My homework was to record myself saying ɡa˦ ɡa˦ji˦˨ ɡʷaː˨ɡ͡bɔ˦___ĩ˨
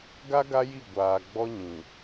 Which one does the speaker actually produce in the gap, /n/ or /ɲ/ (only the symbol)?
ɲ